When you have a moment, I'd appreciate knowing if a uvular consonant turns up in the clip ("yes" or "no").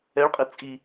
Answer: yes